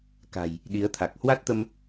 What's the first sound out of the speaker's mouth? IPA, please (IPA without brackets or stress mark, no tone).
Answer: k